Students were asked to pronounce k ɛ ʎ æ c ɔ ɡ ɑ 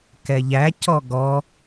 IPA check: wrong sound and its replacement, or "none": ɑ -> ɔ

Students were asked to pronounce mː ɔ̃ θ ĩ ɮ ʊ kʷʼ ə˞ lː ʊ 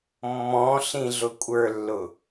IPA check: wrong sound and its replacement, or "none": θ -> ɬ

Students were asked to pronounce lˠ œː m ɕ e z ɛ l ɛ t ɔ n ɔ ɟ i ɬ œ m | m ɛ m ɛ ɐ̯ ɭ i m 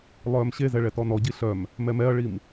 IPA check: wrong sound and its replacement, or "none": l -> ɭ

